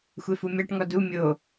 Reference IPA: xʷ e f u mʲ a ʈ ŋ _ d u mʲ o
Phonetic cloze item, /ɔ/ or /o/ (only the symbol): ɔ